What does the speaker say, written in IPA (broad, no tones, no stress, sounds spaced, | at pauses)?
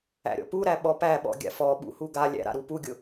æ̰ ɾʲ ɔ̰ p u ɾ æ ɓ ɔ p æ ɓ ɔ̰ ɡʲ a̰ f ɔ ɓ ṵ h u ɡ a lʲ æ̰ ɾ a̰ ɾ u p u ɡʲ ʊ